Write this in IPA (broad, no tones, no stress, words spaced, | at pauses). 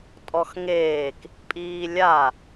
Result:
tʼɔxŋeːk | pʼiːlʲa